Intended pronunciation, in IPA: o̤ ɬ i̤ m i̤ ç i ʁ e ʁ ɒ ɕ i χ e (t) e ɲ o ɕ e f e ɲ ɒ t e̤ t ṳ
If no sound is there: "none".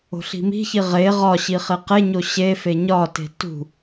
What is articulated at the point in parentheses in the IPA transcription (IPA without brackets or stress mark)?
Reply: q